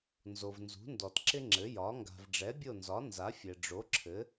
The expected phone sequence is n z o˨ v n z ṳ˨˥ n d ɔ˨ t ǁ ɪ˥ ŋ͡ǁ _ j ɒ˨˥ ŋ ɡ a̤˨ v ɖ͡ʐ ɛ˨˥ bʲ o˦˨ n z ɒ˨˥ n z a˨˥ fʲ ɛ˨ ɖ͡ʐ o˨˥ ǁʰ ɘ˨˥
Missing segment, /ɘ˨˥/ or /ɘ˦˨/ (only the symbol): ɘ˨˥